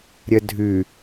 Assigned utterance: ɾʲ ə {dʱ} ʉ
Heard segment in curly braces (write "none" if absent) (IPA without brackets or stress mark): dʱ